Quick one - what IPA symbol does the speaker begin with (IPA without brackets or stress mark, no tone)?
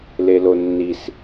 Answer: l